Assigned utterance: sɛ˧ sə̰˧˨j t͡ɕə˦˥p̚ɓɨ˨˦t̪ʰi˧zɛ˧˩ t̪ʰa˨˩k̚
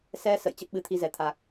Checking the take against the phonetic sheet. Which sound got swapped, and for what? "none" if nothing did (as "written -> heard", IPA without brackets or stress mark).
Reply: none